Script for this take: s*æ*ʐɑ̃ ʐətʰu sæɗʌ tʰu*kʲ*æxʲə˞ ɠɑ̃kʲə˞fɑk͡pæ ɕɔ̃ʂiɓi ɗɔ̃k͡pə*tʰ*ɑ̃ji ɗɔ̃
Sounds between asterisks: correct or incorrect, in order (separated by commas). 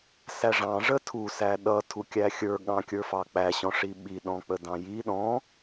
correct, correct, incorrect